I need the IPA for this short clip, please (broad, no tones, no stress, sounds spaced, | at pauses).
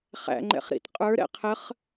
χ æ̰ ŋ͡ǃ ɛ̰ χ ɾ ḭ t qʼ ə˞ ɾ ɛ̰ qʰ ə χ